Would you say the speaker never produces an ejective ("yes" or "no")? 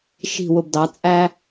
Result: no